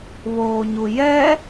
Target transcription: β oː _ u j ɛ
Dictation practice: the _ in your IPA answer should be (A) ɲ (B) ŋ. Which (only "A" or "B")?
A